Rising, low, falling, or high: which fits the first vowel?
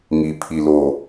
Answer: low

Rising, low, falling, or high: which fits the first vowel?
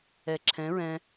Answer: low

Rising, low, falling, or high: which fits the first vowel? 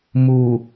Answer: low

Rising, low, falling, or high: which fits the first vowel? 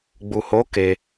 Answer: low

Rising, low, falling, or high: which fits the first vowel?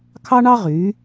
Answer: high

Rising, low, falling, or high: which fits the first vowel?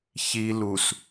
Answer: low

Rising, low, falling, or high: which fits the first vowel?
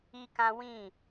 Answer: high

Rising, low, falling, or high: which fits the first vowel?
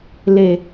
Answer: low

